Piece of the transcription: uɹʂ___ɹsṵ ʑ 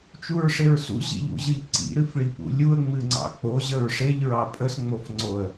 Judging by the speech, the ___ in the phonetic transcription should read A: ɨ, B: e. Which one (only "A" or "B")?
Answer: B